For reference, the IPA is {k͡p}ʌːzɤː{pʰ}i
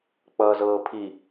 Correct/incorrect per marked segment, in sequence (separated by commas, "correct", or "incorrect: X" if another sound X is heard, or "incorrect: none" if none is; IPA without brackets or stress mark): correct, correct